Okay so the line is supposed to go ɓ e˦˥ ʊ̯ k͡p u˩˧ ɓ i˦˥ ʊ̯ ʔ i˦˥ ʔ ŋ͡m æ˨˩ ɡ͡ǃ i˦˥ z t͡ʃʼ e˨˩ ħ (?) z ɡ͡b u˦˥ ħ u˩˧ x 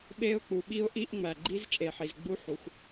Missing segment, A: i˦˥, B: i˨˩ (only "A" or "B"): B